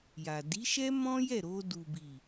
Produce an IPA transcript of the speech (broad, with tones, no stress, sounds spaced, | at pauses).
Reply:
j a˨ d i˨˦ ʃ ɛ˦ m ɔ̃˦ j ɛ˦˨ ɾ o˧ d u˨ b i˨